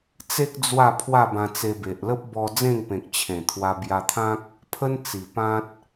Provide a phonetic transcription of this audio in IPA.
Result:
t͡s e˦ k̚ d͡z w a˥˧ pʰ w a˥˧ b ã˧ t͡s e˧ b e˨ ʔ l ə˦ p̚ b ɔ˧ d͡z ẽ˥˧ ŋ p ẽ˨ k̚ t͡ɕʰ ẽ˨˩ t̪ʰ w a˧ b j a˧ t̪ʰ ã˦ k̚ | pʰ ə˦ n t͡s i˨˩ p ã˦ t̚

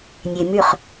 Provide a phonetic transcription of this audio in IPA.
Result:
nʲ e m y χ

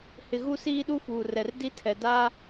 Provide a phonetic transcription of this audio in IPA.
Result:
h ɪ˨ ɣ u˦ s iː˦ ɗ u˦ f uː˨ r ɛ˨ r d i˦ tʰ ɛ˨ d a˦

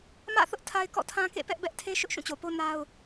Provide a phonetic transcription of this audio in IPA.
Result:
m ä̰˦˨ θ ʊ˦ ʔ tʰ a˦ ɪ̯ k ɔ̰˦˨ tʰ ã˦ k ḛ˦˨ p ɛ˦ ʔ b ɛ˦ ʔ tʰ e˦ ʃ ʊ˦ ʔ ʃ ũ˦˨ t͡ɕ o˨ p o˦ n a˦ ʊ̯

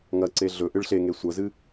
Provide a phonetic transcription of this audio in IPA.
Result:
ŋ ɐ ǀ e ɮ ɵ ʔ ɨ ɭ ɬ e ŋ e sʷ ɐ z ɨ

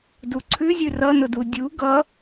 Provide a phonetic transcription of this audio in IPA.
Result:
d u ǀʰ ʉ zʲ ʉ r ʌ n ʊ d u dʲ u ɡ ʌ

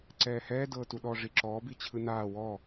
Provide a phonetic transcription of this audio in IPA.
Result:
ǀ ɛː h ɛː d ɤː t u ɗ ɔ ʐ i ǁ ɔː b i t͡ɕʰ ɯ n aː w ɔ

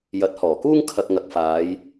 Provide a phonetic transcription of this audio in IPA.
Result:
j ɐ˨˥ t̚ h ɔː˨˩ k uː˥ ŋ kʰ ɐ˨ k̚ ŋ ɐ˨ k̚ f aː˨˧ j

